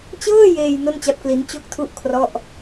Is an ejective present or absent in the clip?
absent